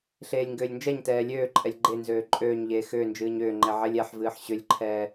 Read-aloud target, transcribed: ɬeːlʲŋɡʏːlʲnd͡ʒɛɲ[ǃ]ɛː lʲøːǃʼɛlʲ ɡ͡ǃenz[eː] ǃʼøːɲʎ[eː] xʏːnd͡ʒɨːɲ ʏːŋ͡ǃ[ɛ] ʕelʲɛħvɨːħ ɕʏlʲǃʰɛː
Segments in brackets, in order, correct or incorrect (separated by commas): incorrect, incorrect, correct, correct